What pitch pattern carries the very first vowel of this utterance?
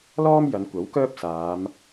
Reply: high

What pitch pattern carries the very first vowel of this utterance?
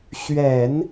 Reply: low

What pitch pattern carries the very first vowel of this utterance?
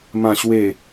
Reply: low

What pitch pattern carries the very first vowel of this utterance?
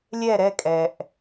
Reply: falling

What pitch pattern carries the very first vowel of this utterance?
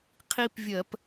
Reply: high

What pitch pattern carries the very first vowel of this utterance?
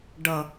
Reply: low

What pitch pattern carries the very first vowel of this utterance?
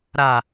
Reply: low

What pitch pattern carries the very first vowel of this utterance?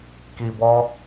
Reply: low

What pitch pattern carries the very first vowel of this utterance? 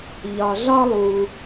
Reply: low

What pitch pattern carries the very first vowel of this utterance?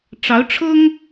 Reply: rising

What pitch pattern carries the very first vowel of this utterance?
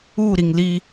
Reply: falling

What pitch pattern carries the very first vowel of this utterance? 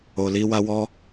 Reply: low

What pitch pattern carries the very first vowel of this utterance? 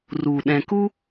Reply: low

